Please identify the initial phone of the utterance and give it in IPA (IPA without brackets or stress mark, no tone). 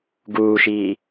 ɡ